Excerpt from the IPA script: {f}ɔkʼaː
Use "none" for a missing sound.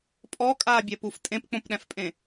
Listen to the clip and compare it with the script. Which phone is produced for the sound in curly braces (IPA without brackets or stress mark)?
pʼ